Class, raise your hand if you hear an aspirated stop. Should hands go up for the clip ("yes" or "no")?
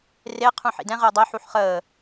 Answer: yes